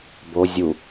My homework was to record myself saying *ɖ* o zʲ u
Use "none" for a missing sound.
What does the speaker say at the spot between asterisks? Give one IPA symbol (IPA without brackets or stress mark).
b